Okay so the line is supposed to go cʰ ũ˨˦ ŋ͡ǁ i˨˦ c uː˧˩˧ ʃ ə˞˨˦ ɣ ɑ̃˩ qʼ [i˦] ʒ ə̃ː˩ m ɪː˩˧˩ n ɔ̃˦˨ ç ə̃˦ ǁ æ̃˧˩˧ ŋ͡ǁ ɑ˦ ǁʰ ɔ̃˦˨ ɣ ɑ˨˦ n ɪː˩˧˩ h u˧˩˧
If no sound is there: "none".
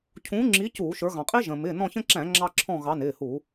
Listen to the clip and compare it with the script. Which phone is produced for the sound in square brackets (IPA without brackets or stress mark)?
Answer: i˦